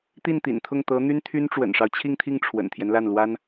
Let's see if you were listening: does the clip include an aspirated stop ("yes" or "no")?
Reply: yes